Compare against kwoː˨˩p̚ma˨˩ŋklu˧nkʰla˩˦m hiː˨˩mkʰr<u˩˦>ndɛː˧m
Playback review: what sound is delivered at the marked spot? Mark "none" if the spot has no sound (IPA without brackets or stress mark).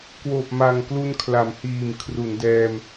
u˩˦